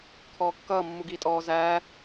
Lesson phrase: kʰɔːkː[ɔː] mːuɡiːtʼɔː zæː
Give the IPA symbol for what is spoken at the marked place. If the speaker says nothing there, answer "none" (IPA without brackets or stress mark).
ʌː